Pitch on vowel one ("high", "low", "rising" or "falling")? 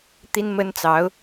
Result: high